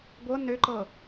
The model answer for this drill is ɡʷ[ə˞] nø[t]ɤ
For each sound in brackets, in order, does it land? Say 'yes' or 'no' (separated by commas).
no, no